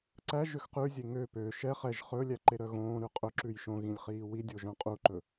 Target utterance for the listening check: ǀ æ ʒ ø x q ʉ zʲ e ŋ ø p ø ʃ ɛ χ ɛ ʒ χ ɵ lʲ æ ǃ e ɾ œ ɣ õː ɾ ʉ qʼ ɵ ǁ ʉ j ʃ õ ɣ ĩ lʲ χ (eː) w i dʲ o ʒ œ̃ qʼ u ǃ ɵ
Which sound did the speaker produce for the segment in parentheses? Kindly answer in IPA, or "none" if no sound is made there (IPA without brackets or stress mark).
iː